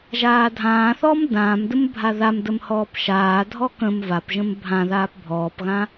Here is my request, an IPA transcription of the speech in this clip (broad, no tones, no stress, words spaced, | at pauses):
ʒaːdʱãːθɔːm dãːmdəm bʱaðamdəm hɔːpʃaːdʱɔ kə̃m vapʒə̃m bʱãðaːp bʱɔːpɣã